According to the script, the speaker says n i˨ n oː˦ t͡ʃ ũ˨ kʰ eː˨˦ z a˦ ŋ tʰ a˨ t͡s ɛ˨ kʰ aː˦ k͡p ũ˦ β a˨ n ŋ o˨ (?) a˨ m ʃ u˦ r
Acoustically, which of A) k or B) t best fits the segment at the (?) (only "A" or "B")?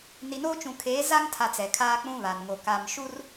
A